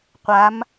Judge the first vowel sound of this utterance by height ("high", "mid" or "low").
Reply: low